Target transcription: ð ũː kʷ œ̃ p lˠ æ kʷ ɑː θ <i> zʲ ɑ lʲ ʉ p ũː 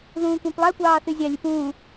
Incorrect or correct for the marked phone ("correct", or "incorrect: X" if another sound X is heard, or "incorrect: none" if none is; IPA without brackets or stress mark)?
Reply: incorrect: y